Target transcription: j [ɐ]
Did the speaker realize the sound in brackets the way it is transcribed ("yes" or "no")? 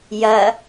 yes